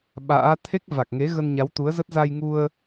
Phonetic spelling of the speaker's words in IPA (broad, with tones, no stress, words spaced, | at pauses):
ɓa̰ː˧˥ t̪ʰe˦˥k̚va˨˩k̚ŋe˨˦ ɣə˧nɲa˨˦wt̪u˨˦ə̯zə˦˥t̚ za˧jŋu˧ə̯